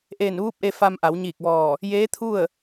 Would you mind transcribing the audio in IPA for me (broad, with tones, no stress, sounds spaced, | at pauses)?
ʔ eː˧˩ n ʋ uː˧˥ p̚ ʔ e˧ f a˧ m ʔ a˩˧ w ɲ iː˧˩ k̚ ʋ ɔː˧˩ | j eː˧˥ t̪ʰ u˥˨ ə̯